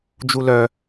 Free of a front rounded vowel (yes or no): no